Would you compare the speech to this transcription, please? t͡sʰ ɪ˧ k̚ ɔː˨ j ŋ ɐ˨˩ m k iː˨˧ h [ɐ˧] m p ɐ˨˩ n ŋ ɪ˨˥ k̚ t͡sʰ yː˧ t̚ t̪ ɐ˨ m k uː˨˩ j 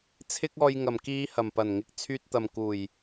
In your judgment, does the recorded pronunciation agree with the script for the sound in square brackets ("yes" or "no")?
no